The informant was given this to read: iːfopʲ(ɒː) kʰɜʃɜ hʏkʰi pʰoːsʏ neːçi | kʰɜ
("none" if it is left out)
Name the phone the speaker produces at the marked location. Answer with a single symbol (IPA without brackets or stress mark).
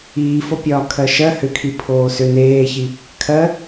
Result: ɒː